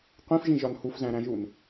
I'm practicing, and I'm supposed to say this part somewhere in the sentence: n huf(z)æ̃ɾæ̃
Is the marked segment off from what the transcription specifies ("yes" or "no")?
no